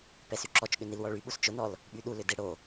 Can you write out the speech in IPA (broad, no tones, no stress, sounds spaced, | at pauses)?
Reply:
p ɛ s y ǁ ɔ t͡ʃ ɠ ʏ n i l w ɔ ɭ y ɓ u s t͡ʃ ʊ n ɔ l | ɓ y ɗ u l ʏ d ɪ ɽ o